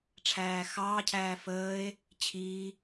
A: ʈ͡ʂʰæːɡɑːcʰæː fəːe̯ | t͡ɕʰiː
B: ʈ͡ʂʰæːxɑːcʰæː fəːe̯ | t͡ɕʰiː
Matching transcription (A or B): B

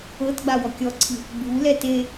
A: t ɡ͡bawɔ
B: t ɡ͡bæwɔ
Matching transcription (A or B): A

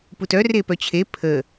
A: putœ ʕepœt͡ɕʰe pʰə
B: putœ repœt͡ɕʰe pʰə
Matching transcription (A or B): B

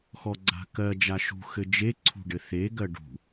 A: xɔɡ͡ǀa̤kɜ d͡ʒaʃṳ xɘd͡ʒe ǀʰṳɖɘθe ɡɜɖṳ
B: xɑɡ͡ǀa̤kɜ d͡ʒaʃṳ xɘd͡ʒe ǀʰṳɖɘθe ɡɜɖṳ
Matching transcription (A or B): A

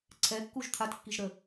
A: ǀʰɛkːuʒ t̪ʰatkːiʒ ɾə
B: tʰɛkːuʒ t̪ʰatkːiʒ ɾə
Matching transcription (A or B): A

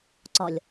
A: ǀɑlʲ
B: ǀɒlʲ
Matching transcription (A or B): B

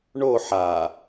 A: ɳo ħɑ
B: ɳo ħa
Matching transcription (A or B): B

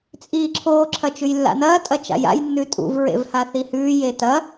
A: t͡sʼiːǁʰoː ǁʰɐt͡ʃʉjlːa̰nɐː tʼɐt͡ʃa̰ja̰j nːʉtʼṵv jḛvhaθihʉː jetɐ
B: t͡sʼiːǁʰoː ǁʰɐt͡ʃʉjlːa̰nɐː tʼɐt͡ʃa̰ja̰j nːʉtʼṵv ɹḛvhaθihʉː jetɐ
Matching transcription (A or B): B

